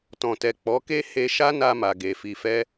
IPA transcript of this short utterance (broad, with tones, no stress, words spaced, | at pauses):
tɔ̃˨tɛ˨k͡pɔ˨˦ ke˦he˧ʃa˦ na˧ma˨ɡe˨fi˨ fɛ˧